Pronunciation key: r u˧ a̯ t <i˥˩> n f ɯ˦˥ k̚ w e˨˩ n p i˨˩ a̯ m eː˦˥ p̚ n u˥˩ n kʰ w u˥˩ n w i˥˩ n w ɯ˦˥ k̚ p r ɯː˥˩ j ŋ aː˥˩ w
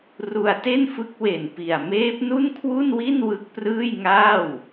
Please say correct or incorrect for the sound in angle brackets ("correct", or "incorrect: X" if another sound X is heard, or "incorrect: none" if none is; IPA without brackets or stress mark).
incorrect: e˥˩